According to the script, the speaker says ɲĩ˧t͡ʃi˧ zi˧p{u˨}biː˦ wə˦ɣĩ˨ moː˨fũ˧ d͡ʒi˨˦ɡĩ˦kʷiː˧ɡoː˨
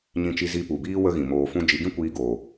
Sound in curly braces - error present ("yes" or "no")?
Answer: no